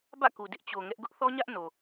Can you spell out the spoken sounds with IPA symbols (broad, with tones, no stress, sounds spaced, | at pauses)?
b ä̰˦˨ k u˨ d ɪ˦ ʔ t͡ɕ o˨ ŋ ɛ˦ ʔ ɡ ʊ˦ ʔ θ ɔ˦ ɲ ä˦ ʔ n o˨